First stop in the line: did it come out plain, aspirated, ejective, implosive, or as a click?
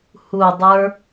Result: plain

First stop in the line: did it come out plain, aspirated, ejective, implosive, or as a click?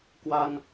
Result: plain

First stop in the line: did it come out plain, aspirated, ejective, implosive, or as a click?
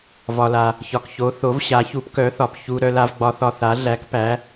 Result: plain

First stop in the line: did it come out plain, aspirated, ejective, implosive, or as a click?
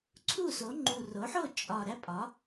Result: click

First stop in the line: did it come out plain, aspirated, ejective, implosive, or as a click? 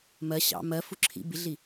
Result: click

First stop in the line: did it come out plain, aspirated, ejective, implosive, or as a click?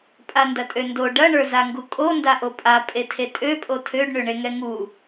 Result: ejective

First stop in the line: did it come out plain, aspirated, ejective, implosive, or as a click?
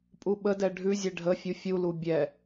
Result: ejective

